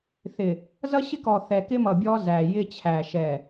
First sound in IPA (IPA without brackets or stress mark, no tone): θ